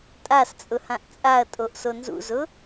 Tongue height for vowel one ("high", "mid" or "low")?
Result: low